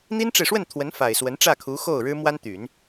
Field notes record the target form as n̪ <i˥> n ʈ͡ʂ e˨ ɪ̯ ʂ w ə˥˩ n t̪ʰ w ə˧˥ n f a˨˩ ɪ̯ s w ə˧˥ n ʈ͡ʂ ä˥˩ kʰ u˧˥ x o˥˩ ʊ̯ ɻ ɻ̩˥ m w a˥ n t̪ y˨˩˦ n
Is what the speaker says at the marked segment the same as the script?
yes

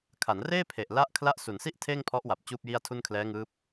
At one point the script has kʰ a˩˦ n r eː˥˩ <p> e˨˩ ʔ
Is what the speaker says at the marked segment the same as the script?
no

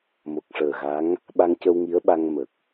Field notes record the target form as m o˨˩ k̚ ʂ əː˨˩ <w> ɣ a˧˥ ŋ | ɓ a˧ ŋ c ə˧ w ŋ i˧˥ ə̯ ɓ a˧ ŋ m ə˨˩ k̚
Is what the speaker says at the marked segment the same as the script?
no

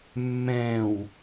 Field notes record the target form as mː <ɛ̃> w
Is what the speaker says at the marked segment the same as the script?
yes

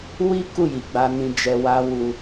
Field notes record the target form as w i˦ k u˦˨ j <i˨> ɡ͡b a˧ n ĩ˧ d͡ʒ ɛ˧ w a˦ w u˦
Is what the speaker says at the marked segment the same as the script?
yes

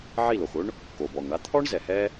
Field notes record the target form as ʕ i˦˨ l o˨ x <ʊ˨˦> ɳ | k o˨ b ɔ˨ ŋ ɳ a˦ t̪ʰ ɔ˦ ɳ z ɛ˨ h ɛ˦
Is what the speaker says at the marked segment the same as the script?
no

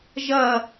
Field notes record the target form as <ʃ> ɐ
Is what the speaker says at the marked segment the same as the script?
no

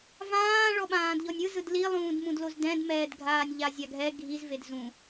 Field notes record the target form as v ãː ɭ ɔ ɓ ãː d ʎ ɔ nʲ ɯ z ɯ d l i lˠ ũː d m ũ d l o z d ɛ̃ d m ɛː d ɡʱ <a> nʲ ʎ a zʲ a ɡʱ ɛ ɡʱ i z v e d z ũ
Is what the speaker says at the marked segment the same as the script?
no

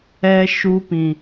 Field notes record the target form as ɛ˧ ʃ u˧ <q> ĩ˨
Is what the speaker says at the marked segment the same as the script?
no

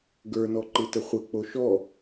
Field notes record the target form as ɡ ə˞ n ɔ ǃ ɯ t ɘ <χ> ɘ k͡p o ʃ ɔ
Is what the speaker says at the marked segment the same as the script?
no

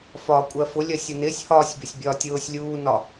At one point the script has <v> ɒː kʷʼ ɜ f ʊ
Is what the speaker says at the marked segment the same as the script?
no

